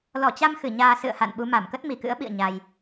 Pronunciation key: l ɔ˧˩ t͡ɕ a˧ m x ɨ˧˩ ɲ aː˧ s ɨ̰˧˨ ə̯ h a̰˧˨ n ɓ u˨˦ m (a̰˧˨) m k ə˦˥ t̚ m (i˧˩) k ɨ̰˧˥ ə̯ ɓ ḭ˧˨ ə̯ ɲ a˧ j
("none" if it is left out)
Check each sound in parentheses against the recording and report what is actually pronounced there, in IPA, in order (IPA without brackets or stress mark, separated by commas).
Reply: a˧˩, i˧˩